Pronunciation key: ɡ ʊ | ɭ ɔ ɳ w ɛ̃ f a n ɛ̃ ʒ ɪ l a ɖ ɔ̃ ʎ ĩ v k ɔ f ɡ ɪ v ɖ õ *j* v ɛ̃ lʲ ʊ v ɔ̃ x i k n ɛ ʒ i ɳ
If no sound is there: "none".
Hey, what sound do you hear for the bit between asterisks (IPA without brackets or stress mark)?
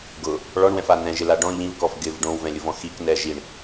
w